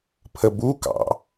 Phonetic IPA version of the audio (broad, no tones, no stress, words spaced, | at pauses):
pʰəbukɑ̰